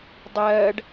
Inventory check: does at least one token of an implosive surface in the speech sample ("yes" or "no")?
no